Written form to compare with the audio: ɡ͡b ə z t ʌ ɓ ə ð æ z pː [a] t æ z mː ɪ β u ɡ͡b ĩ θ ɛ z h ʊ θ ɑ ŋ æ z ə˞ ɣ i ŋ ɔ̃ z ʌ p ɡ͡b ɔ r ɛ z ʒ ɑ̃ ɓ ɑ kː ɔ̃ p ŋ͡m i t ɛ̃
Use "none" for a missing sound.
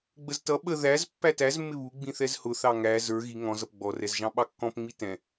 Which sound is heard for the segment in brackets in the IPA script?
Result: æ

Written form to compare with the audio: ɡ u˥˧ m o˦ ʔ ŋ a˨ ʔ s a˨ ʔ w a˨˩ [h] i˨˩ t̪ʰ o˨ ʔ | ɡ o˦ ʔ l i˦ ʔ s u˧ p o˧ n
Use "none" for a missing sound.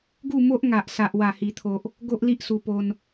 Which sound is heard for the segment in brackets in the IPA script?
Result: h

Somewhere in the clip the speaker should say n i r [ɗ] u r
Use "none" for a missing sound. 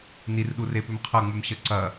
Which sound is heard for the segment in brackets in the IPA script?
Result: ɗ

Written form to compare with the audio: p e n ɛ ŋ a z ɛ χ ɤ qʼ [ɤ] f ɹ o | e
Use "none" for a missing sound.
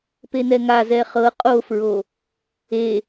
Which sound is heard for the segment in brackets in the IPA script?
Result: o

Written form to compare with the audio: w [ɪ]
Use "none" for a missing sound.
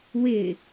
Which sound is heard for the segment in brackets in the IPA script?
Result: ɪ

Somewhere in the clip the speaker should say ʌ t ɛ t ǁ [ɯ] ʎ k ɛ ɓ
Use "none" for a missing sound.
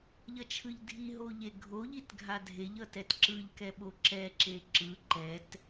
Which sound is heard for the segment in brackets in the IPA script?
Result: ɯ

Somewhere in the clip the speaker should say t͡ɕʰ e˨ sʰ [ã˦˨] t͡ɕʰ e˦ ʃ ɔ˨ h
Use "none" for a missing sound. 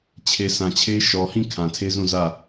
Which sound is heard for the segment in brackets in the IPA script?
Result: ã˨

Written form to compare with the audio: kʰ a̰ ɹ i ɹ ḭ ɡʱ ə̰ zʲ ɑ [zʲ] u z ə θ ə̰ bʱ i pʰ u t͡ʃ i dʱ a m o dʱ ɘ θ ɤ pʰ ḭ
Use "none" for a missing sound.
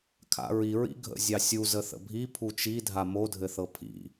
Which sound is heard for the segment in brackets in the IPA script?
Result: sʲ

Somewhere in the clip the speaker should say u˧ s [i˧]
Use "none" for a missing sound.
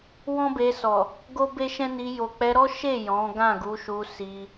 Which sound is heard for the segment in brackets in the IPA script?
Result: i˧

